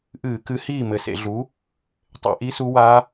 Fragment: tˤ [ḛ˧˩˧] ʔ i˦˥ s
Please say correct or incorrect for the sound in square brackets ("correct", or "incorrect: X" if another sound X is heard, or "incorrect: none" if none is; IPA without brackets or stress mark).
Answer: correct